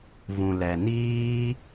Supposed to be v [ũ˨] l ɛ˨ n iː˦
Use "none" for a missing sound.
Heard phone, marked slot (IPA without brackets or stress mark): ũ˨